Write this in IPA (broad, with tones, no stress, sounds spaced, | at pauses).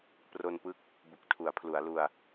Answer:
p r o˧ n p ɯ˦˥ k̚ | b u˨˩ k̚ tʰ u˩˦ a̯ pʰ l u˩˦ a̯ l u˧ a̯